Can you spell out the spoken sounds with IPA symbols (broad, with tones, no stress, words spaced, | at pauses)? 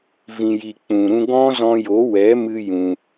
vĩ˨ji˨ k͡pũ˨ɾũ˧ ɡɔ̃˦ zɔ̃˧jo˨˦wɛ˨˦mɨ˧ jũ˧